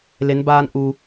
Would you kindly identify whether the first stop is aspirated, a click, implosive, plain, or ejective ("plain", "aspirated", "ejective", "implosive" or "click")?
plain